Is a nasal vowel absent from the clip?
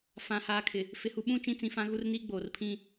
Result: no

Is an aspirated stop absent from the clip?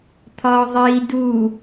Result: no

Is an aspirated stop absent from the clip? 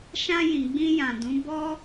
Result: yes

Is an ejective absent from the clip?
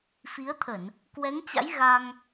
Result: yes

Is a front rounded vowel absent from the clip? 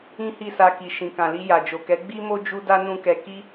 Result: yes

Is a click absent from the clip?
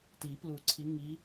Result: no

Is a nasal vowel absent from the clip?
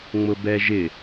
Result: yes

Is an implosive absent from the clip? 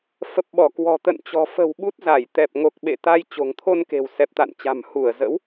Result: no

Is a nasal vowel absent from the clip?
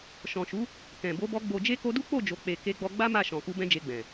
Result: no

